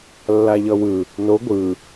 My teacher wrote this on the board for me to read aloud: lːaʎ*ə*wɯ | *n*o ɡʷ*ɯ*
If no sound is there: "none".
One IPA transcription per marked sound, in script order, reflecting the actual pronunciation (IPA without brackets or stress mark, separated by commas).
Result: ʌ, n, ɯ